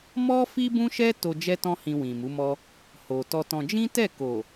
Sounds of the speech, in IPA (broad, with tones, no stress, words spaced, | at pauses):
mɔ˦ fi˦bũ˦ʃɛ˦ to˧ d͡ʒɛ˧tɔ̃˧ hĩ˧wĩ˨mu˨˦mɔ˦ | ho˨tɔ˧tɔ̃˧ d͡ʒĩ˦tɛ˦˨ ko˨